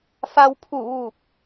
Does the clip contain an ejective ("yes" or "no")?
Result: no